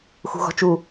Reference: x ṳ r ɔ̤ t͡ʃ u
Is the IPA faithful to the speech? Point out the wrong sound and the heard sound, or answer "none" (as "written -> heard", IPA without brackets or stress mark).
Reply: r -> ɣ